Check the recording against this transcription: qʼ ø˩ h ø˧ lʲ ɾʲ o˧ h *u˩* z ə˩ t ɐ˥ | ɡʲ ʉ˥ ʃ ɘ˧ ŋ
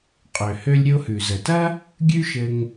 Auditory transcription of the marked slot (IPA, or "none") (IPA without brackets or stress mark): ʉ˩